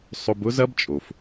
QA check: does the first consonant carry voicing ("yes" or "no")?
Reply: no